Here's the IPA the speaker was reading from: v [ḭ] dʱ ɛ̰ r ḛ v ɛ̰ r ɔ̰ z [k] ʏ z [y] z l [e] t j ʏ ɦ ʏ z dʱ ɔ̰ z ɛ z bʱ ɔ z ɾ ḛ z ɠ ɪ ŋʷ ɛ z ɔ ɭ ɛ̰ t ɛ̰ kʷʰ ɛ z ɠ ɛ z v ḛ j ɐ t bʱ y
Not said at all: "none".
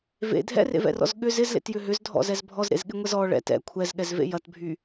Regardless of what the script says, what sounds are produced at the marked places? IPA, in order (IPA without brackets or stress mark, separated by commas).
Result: ḛ, ɠ, ɪ, ḛ